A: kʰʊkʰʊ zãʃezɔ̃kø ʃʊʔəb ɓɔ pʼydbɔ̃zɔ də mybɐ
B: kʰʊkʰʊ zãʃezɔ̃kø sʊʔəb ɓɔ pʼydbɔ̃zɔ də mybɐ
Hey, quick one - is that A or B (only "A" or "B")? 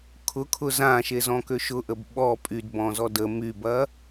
A